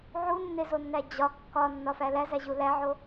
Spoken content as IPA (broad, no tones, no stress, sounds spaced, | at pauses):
ʕ u nː e z o nː æ d͡ʑ ɒ kː ɒ nː ɒ f æ l æ z æ ʑ u l æ ʕ o